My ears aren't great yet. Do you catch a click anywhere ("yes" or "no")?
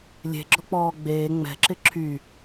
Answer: yes